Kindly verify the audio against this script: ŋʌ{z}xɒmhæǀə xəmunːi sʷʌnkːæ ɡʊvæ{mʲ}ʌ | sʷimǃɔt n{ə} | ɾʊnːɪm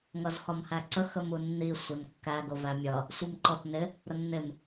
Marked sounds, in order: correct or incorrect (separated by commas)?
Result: correct, correct, incorrect